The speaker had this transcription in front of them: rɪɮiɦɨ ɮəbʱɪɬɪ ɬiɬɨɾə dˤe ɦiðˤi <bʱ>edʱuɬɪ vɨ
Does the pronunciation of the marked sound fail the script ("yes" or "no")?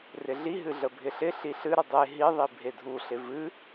no